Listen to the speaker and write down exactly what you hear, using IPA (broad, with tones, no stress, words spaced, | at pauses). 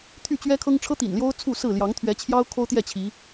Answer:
t̪ʰy˥˨t͡ɕɥɛ˦kʰɤ˦ŋ ʈ͡ʂʰɤ˦t̪ḭ˨˩nljo˦ʊ̯ t͡sʰu˥˨sɹ̩˥˨ ljɑ˨˦ŋt̪ʰɥɛ˨˦t͡ɕʰjɑ˦ʊ̯ kʰo˦ʊ̯t̪jɛ˥˨ t͡ɕʰi˨˦